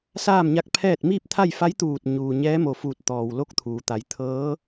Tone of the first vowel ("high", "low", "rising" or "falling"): falling